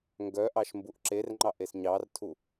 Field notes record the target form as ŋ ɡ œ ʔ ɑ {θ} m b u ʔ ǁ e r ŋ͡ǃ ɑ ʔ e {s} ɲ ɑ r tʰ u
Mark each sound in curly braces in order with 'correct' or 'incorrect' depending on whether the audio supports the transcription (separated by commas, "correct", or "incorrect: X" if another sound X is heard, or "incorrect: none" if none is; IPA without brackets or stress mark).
incorrect: ʃ, correct